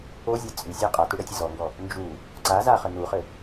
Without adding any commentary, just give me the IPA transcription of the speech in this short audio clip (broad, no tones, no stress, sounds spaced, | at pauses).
o zʲ a t͡sʼ y sʲ a qʼ a t u ɽ ɛ tʲ ə z ɔ ŋ ɡ ɔ | n d͡ʒ u | ǀ a z a χ ə n u χ ɘ